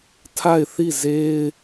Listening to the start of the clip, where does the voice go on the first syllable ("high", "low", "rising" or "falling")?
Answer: falling